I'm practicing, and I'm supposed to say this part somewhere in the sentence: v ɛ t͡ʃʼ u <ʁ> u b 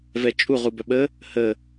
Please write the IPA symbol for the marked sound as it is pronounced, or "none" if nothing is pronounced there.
ʁ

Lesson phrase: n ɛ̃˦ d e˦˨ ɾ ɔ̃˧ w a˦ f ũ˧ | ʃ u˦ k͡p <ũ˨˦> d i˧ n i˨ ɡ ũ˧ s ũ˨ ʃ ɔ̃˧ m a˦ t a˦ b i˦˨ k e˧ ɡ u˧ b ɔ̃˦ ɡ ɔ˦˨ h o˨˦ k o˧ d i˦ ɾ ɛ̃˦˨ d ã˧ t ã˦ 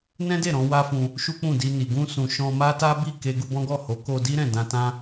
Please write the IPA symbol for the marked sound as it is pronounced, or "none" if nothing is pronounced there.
ũ˦˨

